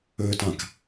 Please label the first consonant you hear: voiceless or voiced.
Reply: voiceless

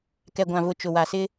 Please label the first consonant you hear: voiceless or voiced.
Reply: voiceless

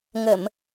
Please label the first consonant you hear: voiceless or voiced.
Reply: voiced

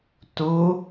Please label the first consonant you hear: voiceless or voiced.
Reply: voiceless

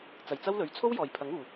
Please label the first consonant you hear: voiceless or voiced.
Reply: voiceless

